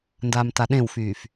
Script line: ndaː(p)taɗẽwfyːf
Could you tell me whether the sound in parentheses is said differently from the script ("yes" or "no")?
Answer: yes